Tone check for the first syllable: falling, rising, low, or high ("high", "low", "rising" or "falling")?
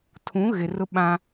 rising